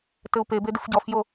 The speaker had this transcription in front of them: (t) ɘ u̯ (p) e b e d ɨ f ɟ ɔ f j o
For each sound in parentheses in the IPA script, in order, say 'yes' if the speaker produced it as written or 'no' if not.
yes, yes

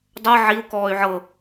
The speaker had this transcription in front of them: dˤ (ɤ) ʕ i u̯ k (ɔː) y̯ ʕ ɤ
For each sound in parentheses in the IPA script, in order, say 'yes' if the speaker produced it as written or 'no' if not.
yes, yes

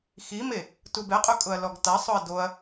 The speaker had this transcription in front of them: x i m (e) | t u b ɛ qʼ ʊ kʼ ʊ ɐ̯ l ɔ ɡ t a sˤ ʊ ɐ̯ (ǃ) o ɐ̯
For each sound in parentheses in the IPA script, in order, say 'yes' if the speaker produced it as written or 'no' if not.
yes, no

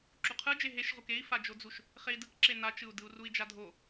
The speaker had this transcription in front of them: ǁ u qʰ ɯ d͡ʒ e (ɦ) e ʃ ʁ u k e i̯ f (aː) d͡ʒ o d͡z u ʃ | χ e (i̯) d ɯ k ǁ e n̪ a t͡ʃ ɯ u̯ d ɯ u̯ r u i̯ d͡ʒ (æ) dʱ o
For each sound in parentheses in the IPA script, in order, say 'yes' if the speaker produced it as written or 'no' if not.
yes, no, yes, no

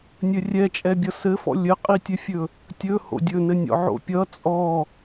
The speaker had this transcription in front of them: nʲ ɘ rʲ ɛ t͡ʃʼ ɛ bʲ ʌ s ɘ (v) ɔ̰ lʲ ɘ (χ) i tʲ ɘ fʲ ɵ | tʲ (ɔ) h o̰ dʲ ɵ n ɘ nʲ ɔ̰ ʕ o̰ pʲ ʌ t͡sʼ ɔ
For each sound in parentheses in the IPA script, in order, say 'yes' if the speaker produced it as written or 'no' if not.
no, no, no

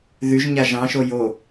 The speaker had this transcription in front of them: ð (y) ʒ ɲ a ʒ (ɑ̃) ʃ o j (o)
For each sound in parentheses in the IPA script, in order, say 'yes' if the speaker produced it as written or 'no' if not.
yes, yes, yes

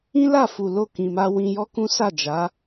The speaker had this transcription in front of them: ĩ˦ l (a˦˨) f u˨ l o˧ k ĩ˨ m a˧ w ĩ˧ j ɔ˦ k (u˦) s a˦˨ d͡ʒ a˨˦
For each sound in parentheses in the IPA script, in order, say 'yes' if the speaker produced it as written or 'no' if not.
yes, no

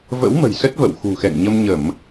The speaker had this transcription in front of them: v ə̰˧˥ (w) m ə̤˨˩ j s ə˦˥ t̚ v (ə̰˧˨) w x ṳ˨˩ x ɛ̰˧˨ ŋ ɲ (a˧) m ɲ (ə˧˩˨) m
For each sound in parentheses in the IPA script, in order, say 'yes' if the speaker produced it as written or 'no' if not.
yes, yes, no, yes

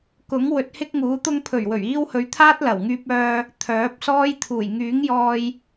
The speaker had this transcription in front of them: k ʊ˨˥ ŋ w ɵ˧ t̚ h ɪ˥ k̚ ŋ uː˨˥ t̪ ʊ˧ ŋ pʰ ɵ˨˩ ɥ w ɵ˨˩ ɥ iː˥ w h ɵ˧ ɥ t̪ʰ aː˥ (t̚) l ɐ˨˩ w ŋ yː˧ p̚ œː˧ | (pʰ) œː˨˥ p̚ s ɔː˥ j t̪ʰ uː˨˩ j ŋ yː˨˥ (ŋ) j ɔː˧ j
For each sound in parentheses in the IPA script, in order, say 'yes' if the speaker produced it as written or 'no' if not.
yes, no, yes

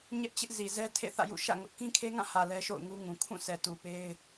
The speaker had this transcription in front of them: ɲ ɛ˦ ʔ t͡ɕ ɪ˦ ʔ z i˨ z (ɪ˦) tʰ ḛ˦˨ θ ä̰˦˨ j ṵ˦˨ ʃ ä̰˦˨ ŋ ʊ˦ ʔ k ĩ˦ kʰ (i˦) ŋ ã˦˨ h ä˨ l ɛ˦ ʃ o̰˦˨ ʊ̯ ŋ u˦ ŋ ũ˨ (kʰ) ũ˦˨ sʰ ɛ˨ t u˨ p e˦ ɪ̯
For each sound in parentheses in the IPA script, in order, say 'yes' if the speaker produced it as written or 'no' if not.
no, no, yes

